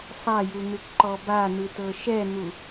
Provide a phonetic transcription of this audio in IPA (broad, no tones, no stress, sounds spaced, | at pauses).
sˤ a j u n̪ ɯ kʷ ǃ ɔ b a n̪ ɯ t ɤ ʃ ɛ n̪ u